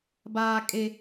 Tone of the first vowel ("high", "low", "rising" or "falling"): high